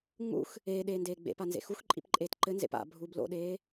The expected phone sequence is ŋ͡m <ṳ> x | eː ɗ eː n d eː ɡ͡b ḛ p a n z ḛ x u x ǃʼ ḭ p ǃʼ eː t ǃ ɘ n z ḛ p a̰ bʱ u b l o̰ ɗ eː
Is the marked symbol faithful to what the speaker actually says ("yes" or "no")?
no